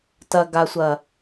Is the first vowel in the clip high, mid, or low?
low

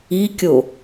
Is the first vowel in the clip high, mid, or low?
high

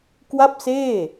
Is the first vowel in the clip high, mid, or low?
low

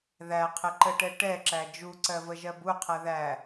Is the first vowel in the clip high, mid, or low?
low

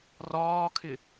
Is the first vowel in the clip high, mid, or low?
low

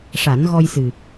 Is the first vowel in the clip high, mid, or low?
low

